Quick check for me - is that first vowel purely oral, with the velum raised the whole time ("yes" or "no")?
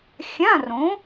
no